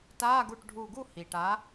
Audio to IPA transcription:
ta˧˥˧ ɡu˧˩ʈɖʱu˧˩ɡu˥˧ hi˩ʈa˨˥

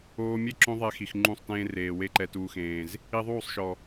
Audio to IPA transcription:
oː˧mʲe˦ ǁõ˦ðˤɛ˧xi˨x ŋ͡ǃũ˦˨sˤtẽː˦reː˨ we˧ǃɛ˨tuː˨xẽː˨z | i˧ðˤuː˦˨sˤʃɔ˨

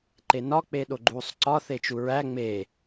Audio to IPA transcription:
ǃenɒ k͡peɗoɡ͡ǃuːsˤǀɒ θet͡ʃuɹæ ŋ͡me

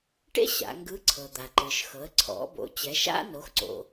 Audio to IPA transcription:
ʈḛ˥ ɕa̰˩˧ŋɡɯ˧˥ ǀʰɤ˩d̪a˩ǃɯ˩ʃxɤ˩˧ə̯ ǀʰɔ̰˩˧bo̰˩˧ t͡ɕɛ˩˧ʃa̰˥ no˩˧xǀo̰˩

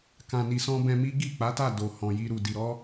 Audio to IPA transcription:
kã˨ni˨sɔ̃˧ bɛ̃˧mi˦ ɡi˦˨k͡pa˨˦ta˦˨do˨ hɔ̃˨ji˧ɾu˨ di˨ɾɔ˨˦

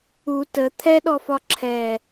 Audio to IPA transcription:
u tə t̪ʰɛɗɔfɒ ǁʰɛ

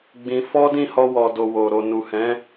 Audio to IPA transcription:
ɡ͡bĩ˧ fɔ˦dĩ˦˨hɔ˧ wɔ˨do˨ wo˨ ɾo˨nu˨hɛ̃˨˦

